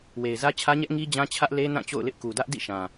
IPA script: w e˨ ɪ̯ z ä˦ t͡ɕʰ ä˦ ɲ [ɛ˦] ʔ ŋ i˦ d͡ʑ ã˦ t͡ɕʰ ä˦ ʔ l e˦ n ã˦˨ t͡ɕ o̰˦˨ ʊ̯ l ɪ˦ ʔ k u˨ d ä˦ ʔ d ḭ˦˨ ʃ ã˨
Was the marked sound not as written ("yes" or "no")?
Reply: no